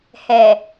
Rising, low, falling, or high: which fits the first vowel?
low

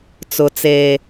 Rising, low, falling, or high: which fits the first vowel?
low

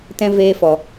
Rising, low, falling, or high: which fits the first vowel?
high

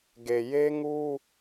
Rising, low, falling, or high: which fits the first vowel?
low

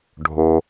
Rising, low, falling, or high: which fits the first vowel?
low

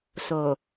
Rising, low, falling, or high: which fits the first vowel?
low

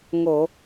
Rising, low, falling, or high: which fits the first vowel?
low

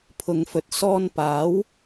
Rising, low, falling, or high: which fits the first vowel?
low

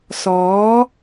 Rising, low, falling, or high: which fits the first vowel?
rising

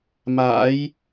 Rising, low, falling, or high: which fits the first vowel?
rising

